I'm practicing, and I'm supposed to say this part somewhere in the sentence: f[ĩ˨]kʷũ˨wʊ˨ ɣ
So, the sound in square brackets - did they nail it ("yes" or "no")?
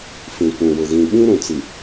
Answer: yes